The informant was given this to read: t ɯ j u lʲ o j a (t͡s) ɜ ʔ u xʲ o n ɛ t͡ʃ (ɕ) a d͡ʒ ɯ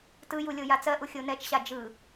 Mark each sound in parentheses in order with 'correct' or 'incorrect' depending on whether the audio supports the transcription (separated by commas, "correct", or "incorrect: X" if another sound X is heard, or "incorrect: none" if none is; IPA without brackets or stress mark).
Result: correct, correct